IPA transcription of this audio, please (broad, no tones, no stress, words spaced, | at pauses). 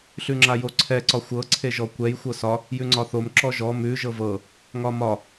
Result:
ɬʉŋ͡ǁajoǀʰɛ ǀɒxʷɤ ǀʰeʒɔkʷɛj xʷɤsɒ | jʉŋ͡ǀɒθom ǁɔʒɔ mʉ ʒɤvɤ | ŋɒmɒ